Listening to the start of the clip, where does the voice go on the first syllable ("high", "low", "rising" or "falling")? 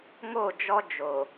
falling